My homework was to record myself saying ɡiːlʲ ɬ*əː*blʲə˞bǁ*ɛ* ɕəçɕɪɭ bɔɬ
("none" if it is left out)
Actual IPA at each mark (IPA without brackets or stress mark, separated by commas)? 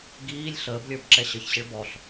əː, ɛ